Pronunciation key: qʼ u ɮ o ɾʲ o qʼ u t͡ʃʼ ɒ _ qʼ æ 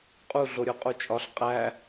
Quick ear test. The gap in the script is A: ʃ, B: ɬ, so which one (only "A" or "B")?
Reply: B